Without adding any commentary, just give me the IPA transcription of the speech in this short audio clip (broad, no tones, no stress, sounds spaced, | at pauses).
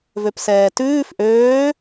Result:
v ø p s ɛː t ʉː f ʔ øː